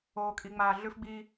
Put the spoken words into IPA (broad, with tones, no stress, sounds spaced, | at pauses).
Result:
oː˨ kʼ i˨ ŋ͡m aː˨ ɮ ʉ˦ f ɡ͡b i˦